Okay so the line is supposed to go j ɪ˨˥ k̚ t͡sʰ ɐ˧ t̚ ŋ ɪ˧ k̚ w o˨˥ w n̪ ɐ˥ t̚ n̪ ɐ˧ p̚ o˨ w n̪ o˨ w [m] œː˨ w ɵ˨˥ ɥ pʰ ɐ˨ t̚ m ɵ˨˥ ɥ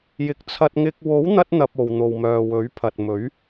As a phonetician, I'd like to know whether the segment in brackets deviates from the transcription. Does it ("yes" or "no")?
no